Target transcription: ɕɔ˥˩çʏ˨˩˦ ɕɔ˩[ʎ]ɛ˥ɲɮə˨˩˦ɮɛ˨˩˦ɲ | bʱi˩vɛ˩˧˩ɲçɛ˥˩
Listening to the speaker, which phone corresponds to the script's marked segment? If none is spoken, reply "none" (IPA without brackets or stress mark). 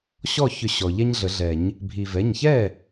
ʎ